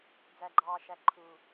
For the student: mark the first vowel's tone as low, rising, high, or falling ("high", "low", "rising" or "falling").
low